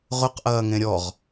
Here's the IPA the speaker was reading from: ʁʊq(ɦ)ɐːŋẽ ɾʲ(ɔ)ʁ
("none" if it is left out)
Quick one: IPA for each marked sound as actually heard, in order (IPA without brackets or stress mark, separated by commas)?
ʔ, ɔ